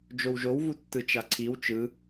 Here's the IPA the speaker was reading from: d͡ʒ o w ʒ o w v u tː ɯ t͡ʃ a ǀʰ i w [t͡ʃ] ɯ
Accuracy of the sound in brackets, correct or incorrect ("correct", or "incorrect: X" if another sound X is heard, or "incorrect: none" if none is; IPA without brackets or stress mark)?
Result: correct